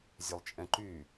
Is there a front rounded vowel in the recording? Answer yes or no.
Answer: yes